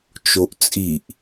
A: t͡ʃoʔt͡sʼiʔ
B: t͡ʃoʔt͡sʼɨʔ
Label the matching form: A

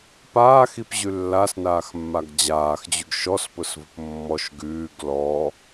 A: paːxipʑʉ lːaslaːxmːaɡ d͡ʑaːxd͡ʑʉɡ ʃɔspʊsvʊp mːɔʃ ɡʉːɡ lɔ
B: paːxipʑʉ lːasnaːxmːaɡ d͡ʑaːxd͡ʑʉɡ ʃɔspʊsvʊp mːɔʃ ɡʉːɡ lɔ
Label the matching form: B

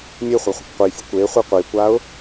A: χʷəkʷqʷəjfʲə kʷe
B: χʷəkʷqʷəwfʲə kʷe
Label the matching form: A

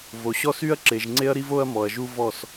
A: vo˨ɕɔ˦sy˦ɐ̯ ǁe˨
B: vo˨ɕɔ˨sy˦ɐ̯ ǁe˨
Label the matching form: A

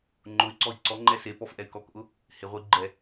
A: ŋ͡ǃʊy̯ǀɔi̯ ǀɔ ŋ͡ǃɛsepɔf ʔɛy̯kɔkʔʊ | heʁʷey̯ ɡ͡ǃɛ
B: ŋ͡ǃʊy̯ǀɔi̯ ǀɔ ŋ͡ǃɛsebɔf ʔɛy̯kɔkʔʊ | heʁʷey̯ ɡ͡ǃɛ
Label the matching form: A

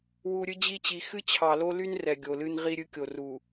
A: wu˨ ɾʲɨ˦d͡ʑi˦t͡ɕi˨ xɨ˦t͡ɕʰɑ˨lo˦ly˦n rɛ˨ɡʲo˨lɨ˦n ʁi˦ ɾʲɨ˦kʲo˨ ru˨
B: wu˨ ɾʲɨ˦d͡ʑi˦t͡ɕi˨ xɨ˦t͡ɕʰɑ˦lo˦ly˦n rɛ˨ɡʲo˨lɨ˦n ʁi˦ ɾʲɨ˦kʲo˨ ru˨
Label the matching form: A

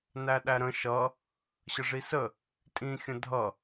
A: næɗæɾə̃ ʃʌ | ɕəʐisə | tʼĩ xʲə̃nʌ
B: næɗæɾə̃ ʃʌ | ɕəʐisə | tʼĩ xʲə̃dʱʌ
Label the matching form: B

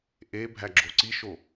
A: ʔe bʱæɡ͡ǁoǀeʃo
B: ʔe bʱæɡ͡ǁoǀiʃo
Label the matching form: B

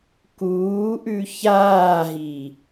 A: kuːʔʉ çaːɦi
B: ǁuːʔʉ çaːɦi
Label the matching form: A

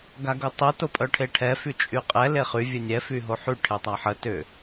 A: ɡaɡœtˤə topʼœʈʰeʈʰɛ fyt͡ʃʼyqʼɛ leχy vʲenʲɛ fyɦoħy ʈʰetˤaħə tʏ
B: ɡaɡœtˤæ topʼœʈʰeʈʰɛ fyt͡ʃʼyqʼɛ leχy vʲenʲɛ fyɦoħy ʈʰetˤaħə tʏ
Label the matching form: A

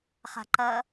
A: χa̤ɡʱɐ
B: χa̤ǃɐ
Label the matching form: B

